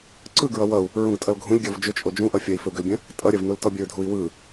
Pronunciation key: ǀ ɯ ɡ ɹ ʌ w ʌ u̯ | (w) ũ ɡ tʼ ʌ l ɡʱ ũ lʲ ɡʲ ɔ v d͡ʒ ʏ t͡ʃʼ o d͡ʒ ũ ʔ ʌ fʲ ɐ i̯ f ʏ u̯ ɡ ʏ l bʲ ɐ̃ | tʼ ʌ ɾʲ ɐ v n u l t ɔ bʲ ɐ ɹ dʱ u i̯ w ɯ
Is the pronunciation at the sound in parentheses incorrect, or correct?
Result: incorrect